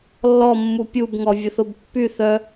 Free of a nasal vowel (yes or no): yes